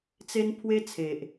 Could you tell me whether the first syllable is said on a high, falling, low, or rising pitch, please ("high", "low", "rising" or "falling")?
high